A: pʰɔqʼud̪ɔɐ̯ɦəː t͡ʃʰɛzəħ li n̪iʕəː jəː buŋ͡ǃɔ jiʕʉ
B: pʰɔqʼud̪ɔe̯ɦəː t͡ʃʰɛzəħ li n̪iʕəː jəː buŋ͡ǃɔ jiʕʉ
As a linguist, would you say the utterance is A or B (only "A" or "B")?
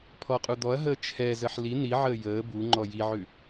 A